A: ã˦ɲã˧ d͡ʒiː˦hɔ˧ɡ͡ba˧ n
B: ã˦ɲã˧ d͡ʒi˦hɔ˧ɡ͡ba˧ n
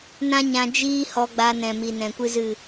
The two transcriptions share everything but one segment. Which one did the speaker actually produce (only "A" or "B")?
A